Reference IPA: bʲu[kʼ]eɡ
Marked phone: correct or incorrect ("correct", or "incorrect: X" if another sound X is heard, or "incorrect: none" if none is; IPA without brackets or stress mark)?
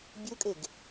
correct